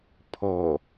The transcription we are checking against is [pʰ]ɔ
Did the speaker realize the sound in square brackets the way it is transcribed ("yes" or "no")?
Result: yes